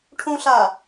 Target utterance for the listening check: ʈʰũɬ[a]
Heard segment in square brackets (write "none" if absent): a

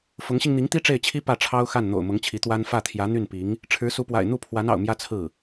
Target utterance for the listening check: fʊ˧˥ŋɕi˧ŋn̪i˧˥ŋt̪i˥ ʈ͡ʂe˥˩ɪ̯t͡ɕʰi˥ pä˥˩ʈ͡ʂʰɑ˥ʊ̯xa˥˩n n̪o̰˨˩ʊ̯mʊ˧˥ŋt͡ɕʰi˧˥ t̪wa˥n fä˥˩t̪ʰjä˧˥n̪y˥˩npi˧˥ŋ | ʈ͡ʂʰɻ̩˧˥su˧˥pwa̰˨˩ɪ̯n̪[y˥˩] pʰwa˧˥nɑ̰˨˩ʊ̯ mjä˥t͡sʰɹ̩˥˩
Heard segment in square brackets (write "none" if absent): u˥˩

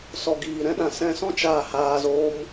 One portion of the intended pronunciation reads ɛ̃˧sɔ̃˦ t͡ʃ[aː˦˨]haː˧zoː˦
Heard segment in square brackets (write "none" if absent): aː˦˨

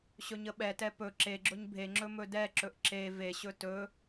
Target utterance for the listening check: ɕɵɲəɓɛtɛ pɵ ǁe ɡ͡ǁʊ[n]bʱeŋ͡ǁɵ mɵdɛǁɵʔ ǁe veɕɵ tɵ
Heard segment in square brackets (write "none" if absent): ɲ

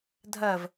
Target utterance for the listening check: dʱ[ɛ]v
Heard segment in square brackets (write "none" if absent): ɜ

